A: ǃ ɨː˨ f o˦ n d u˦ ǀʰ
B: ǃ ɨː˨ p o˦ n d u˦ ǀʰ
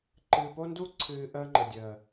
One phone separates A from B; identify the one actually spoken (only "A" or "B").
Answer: B